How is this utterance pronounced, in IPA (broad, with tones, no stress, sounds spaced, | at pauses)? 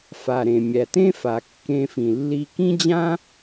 f a˩ ɾ ẽ˩ mʲ æ˩ t ẽ˥ f a˩ kː ẽ˧ f ĩ˩ lː i˧ k ĩ˥ d͡ʑ ã˥